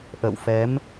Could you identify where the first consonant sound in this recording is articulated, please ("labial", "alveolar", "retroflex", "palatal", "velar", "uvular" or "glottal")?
glottal